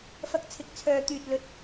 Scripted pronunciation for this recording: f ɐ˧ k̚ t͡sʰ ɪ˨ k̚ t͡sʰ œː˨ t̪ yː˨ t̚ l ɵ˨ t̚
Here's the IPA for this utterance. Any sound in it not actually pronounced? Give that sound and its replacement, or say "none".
none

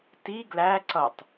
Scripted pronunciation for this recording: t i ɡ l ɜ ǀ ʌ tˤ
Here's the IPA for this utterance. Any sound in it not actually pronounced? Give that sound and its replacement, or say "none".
ɜ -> æ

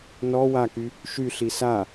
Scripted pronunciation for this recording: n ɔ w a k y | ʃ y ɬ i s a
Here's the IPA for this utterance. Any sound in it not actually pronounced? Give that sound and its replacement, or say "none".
none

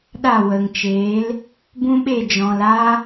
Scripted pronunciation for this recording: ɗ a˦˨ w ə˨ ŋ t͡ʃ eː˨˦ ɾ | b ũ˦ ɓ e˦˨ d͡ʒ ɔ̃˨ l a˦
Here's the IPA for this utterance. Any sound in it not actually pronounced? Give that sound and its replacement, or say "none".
ɾ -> l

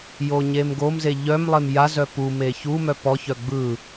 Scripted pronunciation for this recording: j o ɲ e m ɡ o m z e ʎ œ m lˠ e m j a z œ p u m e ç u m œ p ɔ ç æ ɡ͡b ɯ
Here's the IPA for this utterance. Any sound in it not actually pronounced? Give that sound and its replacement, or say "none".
æ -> œ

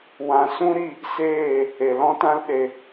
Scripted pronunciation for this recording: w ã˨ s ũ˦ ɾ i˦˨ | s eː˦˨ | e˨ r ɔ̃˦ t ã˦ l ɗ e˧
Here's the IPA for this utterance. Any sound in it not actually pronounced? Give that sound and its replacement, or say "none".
r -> l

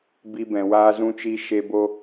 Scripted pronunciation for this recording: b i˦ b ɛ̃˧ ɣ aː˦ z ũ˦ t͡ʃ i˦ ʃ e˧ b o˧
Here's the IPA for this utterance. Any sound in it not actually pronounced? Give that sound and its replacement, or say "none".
ɣ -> w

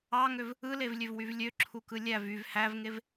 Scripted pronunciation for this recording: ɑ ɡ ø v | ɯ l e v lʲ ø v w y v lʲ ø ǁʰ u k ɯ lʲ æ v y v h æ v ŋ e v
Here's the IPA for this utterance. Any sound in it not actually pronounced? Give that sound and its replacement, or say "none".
ɡ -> ŋ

